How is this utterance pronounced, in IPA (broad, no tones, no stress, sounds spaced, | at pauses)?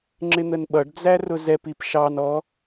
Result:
ŋ͡ǁ ɪ n̪ ə n ɓ ʌ ɖ d͡z æ r ʊ z ɛ p i p ʃ ɑ n ɔ